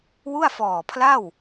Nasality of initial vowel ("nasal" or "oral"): oral